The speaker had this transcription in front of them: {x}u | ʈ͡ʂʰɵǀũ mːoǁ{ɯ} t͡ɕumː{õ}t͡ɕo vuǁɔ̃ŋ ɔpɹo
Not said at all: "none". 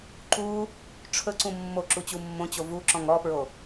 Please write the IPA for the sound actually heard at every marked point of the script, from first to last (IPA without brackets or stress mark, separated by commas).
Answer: ǃ, u, õ